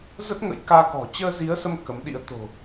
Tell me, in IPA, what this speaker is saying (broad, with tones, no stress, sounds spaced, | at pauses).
z ə˦˥ t̚ ŋ ə̰˧˥ j k aː˧ k ɔ̤˨˩ t͡ɕ əː˧ z i˨˦ ə̯ s ə˧ m k ə˨˦ m ɗ ḭ˧˥ ə̯ t̪ o̤˨˩